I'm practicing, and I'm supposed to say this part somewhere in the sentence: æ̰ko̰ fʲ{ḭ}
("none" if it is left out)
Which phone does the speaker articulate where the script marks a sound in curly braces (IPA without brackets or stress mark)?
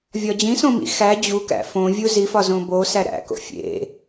ḛ